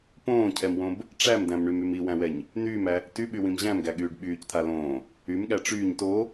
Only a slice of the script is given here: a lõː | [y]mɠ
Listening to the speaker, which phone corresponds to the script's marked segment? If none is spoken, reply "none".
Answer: y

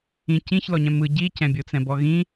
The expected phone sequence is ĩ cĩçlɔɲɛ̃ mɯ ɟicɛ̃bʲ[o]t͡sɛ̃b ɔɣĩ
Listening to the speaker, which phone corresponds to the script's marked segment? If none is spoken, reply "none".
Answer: o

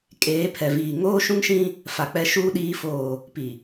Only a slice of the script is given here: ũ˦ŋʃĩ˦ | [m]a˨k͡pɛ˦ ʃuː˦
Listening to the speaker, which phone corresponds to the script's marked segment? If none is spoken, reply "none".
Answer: f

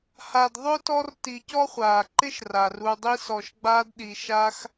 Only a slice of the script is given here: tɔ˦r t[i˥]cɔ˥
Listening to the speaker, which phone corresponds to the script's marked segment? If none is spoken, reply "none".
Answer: i˨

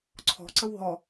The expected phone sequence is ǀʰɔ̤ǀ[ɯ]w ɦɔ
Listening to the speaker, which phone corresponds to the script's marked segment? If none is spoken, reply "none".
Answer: ə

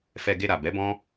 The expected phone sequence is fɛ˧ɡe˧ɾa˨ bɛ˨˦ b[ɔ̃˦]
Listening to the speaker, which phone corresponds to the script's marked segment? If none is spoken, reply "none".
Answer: ɔ̃˦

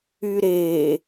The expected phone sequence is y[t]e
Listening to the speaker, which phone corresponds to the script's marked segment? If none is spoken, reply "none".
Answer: ɾ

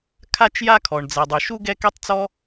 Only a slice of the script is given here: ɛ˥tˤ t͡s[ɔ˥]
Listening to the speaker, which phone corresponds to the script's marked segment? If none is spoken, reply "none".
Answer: ɔ˥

